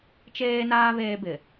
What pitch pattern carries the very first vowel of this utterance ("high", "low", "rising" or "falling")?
high